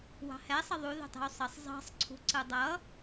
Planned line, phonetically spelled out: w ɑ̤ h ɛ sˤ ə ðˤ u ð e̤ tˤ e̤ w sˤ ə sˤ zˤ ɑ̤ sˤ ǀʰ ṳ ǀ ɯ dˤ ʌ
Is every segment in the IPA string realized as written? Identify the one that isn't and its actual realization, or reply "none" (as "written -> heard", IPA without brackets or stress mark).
none